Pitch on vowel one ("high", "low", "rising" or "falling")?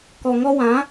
low